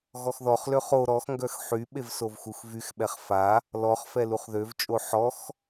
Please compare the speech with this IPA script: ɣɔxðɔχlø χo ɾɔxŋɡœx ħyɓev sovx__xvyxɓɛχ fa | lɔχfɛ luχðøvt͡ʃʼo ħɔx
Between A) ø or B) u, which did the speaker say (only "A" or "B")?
B